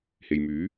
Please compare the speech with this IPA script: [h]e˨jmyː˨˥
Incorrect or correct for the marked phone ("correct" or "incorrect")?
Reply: correct